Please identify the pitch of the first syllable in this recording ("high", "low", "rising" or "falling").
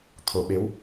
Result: low